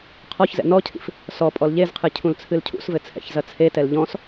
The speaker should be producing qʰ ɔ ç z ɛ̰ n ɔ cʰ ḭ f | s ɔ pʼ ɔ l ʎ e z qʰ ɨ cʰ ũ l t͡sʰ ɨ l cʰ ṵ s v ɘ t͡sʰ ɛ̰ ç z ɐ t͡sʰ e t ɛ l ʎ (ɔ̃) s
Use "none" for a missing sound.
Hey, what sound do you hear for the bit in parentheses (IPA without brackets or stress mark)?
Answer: ɔ̃